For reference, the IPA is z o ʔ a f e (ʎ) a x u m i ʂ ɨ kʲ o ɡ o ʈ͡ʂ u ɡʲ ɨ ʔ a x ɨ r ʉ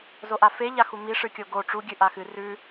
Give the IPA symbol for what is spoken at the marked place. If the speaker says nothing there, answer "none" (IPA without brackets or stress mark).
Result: ʎ